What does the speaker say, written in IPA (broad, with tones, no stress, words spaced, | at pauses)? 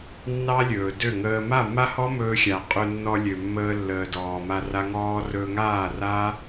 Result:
nːɑ˦lʲɵː˨ dø˦˨ŋəː˧ ma˦˨mːa˦hɔ˦ mɵː˧xʲa˨ qʼø˧nːɔ˧ lʲø˨ mːəː˧lːəː˨ dɔː˨ma˧ra˧ ŋɔː˧ rɵː˧ŋaː˦˨raː˦